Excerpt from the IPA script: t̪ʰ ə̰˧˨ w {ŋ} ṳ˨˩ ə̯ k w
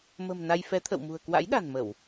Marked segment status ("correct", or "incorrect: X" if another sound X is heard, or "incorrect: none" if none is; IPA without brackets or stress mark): incorrect: m